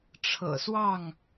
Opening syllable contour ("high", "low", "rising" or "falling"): low